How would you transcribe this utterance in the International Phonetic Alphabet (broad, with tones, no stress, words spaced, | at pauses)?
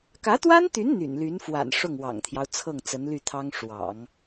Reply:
kä˧˥t̪wa˥nt̪y˧˥n n̪y̰˨˩nly˧˥nfwa̰˨˩n ʂʊ˥˩ŋwɑ̰˨˩ŋt̪ʰjɑ˦ʊ̯ t͡sʰɤ˥˩ŋt͡sə˧˥nly˥˩ t̪ʰɑ˥ŋʂwɑ̰˨˩˦ŋ